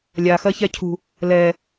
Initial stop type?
aspirated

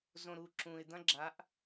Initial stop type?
click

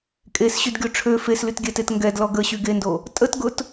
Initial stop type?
ejective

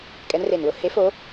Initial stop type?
ejective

